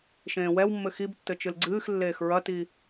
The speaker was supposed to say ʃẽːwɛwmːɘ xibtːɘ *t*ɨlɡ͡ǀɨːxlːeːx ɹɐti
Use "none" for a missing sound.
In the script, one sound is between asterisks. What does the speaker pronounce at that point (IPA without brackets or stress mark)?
t͡ʃ